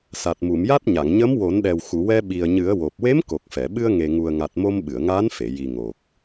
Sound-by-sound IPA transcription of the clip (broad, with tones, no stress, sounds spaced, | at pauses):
s a˨˩ t̚ m u˨˩˨ m j a˦˥ t̚ ɲ a˨˩˨ ŋ ɲ ə˧˥ m w o˨˩˦ n ɗ ɛ˨˩ w x u˨˩˨ w ɛ˧ ɓ i˨˩ ə̯ ɲ ɨ˨˩˦ ə̯ w o˨˩ p̚ w e˧˥ m k o˨˩ k̚ f ɛ˨˩˨ ɓ ɨ˧ ə̯ ŋ e˨˩ ŋ u˨˩ ə̯ ŋ a˨˩ t̚ m o˧ m ɓ ɨ˨˩˨ ə̯ ŋ aː˧˥ n f e˨˩˨ j i˨˩ ŋ o˨˩ k̚